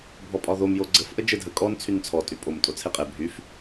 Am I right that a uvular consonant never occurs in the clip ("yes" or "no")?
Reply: no